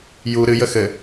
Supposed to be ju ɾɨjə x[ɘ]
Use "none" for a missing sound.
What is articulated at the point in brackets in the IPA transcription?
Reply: ɘ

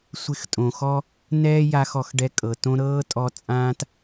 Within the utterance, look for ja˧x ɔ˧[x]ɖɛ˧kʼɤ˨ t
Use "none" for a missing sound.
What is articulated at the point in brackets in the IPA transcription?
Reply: x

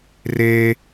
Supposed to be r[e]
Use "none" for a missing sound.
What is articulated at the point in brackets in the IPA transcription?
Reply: e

